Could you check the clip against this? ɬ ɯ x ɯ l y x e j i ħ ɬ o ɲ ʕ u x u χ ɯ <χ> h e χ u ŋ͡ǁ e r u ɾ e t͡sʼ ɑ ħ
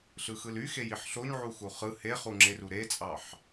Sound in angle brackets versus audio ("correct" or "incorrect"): incorrect